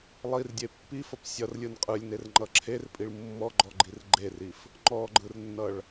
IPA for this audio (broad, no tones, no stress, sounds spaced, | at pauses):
lˠ i r dʲ e pː i f ʌ p sʲ ʌ r lʲ ɯ n qʼ ɯ lʲ n e r ŋ͡ǃ ʌ ǁʰ e r pʼ i ɭ mː ɔ ɡ͡ǃ ɔ ɡ͡ǃ i r ɡ͡ǃ e r i f | ŋ͡ǃ ɔ ɡ͡ǃ ɯ r nː ʌ ɭ